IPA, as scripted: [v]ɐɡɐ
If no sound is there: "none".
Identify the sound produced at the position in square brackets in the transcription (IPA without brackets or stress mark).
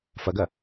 f